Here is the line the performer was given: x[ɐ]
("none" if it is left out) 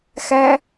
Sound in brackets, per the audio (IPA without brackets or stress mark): æ